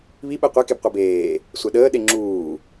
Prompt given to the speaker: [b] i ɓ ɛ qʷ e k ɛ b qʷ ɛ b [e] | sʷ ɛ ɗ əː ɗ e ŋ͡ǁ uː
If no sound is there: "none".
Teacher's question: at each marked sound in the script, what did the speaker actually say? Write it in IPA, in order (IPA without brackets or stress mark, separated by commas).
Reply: β, eː